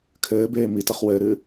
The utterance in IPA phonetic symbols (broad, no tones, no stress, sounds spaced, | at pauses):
kʰ ɘː b eː m i t ɘ χ w ɘː ɾ ɨː